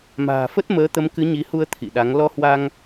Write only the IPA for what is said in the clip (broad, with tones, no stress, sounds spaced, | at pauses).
m a̤ː˨˩ f ə˦˥ t̚ m əː˨˦ t̪ ə˨˦ m k ɨ˨˦ ɲ i˨˦ h u˧ ə̯ t̪ʰ ḭ˧˨ ɗ a˨˦ ŋ l ɔ˧ h w a˧ ŋ